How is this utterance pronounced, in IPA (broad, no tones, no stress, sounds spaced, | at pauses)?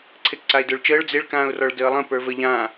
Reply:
ǀʰ e k ǀ a ɪ̯ d ə˞ ɭ t͡ʃ əː ɭ d͡z e ɭ k ãː ʊ̯ r ɔ ɭ d əː lˠ ə̃ p ə˞ v ə ʎ ãː